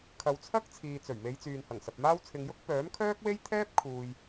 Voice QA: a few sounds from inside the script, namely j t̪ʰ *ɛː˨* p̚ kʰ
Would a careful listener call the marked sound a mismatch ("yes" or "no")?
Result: yes